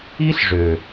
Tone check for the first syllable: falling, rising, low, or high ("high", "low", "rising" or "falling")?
high